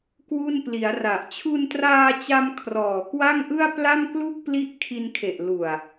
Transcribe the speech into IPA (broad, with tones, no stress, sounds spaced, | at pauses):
k w u˥˩ n p l i˩˦ a̯ r a˨˩ ʔ t͡ɕʰ u˧ n t r aː˧ t͡ɕ a˧ m kʰ r ɔː˨˩ k w a˥˩ ŋ ʔ ɯ˥˩ a̯ p l a˥˩ m k l u˥˩ k̚ p l i˦˥ ʔ kʰ i˧ n kʰ e˨˩ ʔ l u˨˩ a̯